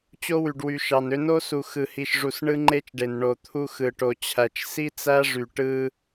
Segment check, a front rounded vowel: present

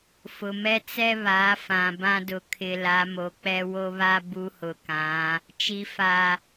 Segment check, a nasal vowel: present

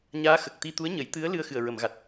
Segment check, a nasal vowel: absent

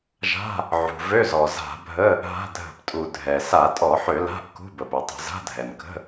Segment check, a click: absent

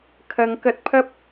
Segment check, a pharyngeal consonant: absent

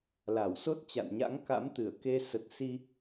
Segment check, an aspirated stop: absent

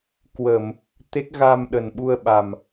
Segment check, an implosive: present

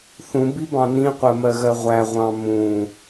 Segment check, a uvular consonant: present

